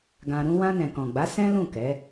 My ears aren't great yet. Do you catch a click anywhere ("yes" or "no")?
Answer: no